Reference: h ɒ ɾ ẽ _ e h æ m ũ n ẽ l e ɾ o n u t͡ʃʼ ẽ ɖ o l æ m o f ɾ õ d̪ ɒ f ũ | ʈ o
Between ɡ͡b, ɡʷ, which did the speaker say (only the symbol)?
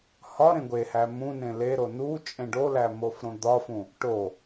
ɡʷ